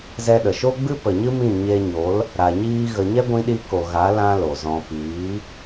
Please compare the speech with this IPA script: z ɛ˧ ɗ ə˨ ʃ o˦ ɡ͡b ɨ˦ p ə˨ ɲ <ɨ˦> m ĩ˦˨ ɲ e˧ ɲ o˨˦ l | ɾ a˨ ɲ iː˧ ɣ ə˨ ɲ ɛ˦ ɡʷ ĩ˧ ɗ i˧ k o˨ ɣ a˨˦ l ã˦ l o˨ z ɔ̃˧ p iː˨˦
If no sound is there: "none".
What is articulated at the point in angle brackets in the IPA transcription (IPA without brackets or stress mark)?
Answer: ɨ˦